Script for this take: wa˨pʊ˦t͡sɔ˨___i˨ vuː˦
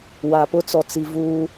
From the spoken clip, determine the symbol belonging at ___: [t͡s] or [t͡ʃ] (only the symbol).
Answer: t͡s